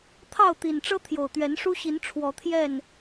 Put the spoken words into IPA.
t̪ʰɑ˥˨ʊ̯t̪i˨˩nʈ͡ʂɤ˦ t̪ʰjo˨˩ʊ̯ t̪ɥɛ˨˦nʂu˦ɕi˨˦n ʈ͡ʂʰwɔ˨˦t̪ʰjɛ˥˨n

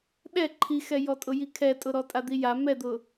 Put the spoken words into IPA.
ɗɛ ǃʰixɛjɔtʼʊ jikʰɛtʼʊɾɔ tʼad̪ija mɛd̪ʊ

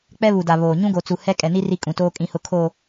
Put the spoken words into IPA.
k͡pɛ˦βu˨da˨ βoː˨ ɲũ˦ɡo˨t͡su˨ hɛ˦ kʼɛ˨ni˦ ri˦kʼũ˨toː˦ kʼĩ˨hʊ˨kʰoː˨

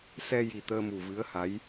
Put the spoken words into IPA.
sɛ˧ji˨˩ t̪əː˧mu˨˩vɨ˧˥ə̯ ha˧˥j

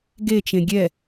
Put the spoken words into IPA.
ɡet͡ʃẽ ɡʲɛ

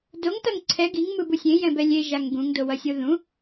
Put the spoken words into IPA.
doŋtʌŋ ǀʰɛ ɡiŋmɯbu sʲẽjɛ̃bɛ lʲeʒaŋ ɡũŋ dowʌsʲoðũ

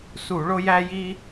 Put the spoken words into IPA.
su˧˩˧ɭo˥jæ˥ji˥

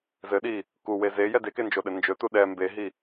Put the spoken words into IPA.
zɘɗi | kuwe zejɛ dekend͡ʒoɗɘ nd͡ʒɵtu ɗɛ mbeɦi

